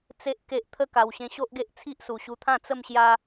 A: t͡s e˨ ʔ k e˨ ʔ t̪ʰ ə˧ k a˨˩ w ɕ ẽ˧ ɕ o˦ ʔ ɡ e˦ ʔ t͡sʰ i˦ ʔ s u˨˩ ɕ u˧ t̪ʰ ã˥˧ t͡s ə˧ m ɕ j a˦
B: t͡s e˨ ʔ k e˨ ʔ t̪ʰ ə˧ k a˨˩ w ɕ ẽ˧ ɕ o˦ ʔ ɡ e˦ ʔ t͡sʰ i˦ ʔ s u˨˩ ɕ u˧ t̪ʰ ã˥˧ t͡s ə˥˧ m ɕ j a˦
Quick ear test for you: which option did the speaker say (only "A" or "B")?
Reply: B